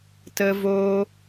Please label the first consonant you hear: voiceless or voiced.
voiceless